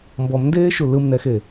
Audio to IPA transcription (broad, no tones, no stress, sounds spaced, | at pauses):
m b ɔ m n d eː ʃ u l ɯ m n ɛ x e